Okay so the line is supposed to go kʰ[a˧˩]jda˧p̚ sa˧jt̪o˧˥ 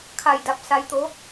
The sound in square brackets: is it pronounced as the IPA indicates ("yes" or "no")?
yes